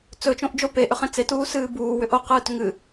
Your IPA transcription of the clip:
t͡s ɵ t͡ʃ õ ʔ d͡ʒ o p e ʔ ʏ χ ẽ t͡s e t uː s ɨː b uː w ʏ ʔ o q ɨː t ʏ ŋ ɨ

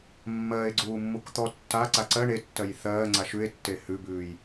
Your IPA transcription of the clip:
mː ɜː e̯ ɡ͡ǀ uː mː u k t̪ ɔ tː a ǀ a ǀ ɜ ɳ e tː ɜ j θ ɜː ŋ͡ǀ a ʃ ʉ e̯ tː e h ʉ b ʉː j

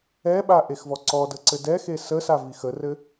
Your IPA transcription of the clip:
ɛ ɓ a ʔ e x v ɔ ǀ ɔ d ə ǀ ɘ d ɛ x e s ə s a v i x ə r ɘ

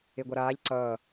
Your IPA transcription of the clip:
e ɡʷ a ɾ aː ʎ ǀ ʌː

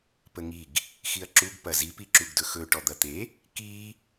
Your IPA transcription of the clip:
p ə ŋ i ɡ | x i ɐ̯ ǁ u ɡ p ɐ z i p i ǁ u ɡ d ɵ x ɵ ʈ ɔ d̪ ɐ t̪ e | k i

